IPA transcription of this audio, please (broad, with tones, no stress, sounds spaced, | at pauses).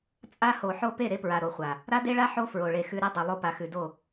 t͡sʼ a˦ h o˨ ħ o˦ p e˦˨ ɾ e˦ p ɹ a˨ ɾ o˨ χʷ a˨ | ɾ a˦ d e˦ ɭ a˦ ħ o˦ f ɹ o˨ ɭ e˨ x ʉ˨ ɾ e˦ dˤ e˨ lˠ o˦ p a˨ x ʉ˨ d o˦˨